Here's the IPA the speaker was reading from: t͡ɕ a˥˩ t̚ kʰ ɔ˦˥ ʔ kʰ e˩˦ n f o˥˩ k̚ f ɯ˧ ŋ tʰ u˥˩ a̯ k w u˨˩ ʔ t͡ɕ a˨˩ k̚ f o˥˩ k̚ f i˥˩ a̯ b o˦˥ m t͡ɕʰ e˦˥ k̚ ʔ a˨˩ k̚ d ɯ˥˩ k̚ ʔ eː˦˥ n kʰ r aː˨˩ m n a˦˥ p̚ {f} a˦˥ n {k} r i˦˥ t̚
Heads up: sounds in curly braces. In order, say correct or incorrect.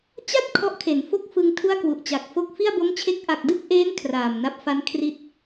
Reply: correct, incorrect

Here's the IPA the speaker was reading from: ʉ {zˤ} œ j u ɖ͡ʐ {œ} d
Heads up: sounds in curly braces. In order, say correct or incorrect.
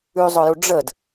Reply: correct, incorrect

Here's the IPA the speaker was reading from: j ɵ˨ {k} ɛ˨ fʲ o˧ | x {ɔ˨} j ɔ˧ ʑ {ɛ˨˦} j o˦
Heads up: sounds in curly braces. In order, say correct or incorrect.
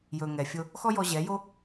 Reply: incorrect, incorrect, correct

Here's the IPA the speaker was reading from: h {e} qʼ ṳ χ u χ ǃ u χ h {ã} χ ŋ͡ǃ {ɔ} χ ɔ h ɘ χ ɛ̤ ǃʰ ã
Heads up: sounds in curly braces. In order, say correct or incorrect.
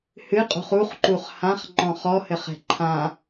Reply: incorrect, correct, incorrect

